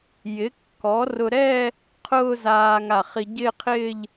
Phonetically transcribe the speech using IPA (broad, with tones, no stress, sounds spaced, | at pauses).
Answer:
j ɪ˩˥ kː ɔ˩˥ r ʊ˧ ɾ ɛː˥˧ | qʰ ʊː˥˧ z aː˧ ŋ a˧˩ χ i˧ ɟ ɪː˥˧ qʰ ɪː˥˧ ʎ